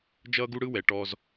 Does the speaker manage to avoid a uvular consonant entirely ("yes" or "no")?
yes